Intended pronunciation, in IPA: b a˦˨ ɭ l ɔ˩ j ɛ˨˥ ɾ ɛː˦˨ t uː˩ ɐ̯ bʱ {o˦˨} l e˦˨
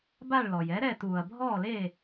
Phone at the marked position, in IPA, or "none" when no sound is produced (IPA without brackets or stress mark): ɔ˦˨